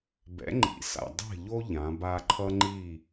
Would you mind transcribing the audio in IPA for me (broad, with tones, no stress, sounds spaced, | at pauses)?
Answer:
b ɛ̰˨˦ ŋ͡ǃ ḭ˨ s a̰˨ dˤ ɛ̤˦˨ ʎ o˦ ʎ ã˨˦ b a˦ ǃʰ ʌ˦ ŋ͡ǃ i˦˨